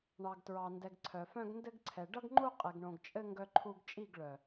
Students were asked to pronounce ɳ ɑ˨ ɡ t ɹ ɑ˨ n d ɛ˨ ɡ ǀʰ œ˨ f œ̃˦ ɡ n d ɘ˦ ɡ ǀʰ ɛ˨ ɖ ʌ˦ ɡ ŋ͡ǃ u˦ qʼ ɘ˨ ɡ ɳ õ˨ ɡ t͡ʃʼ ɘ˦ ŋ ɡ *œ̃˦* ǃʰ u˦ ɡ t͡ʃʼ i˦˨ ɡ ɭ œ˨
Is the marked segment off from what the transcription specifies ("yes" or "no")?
yes